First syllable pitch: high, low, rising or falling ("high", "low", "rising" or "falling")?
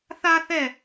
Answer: high